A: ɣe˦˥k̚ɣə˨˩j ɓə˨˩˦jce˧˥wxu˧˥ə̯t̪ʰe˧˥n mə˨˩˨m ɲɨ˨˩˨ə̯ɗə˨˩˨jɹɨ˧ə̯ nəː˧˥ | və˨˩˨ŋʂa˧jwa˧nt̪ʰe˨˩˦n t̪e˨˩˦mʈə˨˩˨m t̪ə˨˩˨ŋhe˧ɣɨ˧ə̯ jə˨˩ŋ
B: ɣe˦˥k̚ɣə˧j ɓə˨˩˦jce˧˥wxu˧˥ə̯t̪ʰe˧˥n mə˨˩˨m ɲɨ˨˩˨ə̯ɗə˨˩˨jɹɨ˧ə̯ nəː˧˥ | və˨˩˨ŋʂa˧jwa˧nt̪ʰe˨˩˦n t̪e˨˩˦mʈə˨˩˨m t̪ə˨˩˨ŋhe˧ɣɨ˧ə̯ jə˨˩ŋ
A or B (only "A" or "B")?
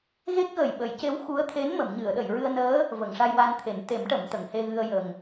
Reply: A